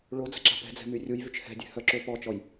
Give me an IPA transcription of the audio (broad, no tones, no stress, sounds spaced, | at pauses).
ɭ o d͡z ə ǁ a̤ p ɛ̤ d͡z ɛ̤ m y rʲ u j v y t͡ʃ h ɛ̤ dʲ ɛ̤ h œ ǁ ø p ɔ t͡ʃ ɔ j